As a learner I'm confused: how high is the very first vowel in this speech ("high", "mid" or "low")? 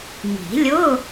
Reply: high